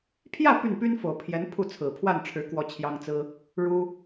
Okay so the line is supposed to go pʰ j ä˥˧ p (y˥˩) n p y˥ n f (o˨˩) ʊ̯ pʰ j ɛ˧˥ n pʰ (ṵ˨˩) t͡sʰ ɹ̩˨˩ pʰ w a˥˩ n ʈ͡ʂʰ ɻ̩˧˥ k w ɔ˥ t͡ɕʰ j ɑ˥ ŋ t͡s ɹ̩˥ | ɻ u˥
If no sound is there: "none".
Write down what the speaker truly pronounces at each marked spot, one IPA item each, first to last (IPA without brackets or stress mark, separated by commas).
y˥˩, o˨˩, u˥˩